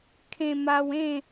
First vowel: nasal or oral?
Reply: nasal